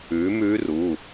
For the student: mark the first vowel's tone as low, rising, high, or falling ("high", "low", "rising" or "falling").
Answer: rising